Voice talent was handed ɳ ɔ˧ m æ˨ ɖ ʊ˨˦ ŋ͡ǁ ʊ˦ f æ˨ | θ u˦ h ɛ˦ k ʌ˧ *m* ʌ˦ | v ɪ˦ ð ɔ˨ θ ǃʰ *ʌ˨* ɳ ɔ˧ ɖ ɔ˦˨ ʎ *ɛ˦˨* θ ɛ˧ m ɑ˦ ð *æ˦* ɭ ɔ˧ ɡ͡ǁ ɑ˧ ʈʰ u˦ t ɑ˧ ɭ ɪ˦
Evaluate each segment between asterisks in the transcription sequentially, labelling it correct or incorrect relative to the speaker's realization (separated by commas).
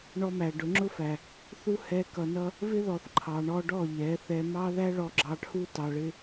incorrect, incorrect, incorrect, correct